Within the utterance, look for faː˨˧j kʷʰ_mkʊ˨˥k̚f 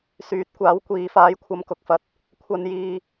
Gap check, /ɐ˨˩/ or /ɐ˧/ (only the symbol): ɐ˧